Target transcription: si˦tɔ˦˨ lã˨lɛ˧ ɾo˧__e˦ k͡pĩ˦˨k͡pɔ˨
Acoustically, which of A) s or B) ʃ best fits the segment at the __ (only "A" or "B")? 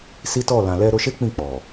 B